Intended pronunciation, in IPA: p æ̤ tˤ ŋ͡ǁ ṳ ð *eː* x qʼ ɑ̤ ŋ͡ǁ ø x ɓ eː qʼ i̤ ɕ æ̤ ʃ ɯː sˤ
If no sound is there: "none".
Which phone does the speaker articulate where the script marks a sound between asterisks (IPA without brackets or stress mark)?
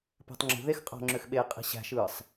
e